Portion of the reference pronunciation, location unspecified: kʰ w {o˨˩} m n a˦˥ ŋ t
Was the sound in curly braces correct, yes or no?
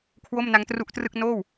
no